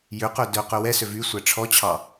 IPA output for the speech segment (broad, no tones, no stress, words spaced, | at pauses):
jøqœ dœqœ wɛsøv y sʷæʈ͡ʂʰɔt͡ɕʰɑ